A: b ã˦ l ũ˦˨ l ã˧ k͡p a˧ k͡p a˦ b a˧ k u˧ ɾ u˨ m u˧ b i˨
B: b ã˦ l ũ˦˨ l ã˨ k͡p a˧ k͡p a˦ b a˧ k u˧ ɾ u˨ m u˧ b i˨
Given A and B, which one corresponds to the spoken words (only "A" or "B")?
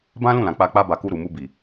B